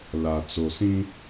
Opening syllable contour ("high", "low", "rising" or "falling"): low